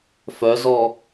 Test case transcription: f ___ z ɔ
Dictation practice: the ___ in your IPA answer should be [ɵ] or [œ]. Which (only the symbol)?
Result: œ